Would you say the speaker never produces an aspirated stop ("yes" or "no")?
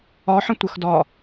yes